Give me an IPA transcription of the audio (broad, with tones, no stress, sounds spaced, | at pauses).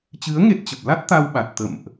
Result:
t͡ɕ ɨ˨˦ ə̯ ŋ e˦˥ t̚ t͡ɕ ə˨˩ p̚ l a˦˥ t̚ t̪ a˧ w ɓ a˨˩ t̚ t̪ ə̰˧˨ m ʔ